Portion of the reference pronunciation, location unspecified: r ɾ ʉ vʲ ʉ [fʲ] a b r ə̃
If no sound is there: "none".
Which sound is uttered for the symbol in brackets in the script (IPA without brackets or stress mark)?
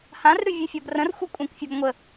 fʲ